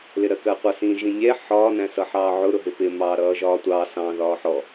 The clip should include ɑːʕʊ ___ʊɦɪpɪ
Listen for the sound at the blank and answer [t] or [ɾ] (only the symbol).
ɾ